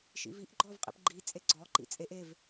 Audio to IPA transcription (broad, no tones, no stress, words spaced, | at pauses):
ʃḭviʔ ɡ͡ǃɔvqʼḭpɡ͡ǃi t͡sʼeɡ͡ǀɔ ǃḭt͡sʼeʔ ev